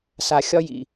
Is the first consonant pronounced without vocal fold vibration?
yes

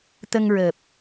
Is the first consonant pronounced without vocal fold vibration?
yes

